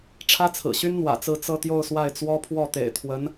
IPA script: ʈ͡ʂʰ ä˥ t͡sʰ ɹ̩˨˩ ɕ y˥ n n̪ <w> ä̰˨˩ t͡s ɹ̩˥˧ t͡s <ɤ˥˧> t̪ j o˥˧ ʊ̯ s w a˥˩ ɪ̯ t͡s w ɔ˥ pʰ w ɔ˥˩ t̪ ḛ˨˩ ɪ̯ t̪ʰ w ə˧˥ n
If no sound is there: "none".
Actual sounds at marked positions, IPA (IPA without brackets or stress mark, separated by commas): w, ɤ˥˧